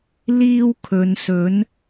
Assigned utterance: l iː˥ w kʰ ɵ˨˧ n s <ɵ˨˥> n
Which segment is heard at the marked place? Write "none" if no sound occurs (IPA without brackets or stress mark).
ɵ˨˥